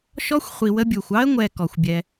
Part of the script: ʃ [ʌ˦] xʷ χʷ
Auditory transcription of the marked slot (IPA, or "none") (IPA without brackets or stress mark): ɔ˦